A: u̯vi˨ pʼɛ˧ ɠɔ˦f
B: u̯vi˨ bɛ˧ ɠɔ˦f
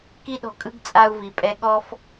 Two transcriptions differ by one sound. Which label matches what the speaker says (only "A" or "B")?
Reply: A